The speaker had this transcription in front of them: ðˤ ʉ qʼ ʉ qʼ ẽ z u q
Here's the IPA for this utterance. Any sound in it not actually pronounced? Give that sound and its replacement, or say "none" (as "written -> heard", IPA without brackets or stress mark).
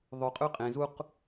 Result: none